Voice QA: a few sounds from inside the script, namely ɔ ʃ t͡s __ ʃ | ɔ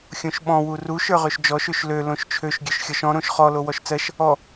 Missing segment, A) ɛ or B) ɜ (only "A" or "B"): B